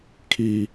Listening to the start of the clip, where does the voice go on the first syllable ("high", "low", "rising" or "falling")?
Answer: high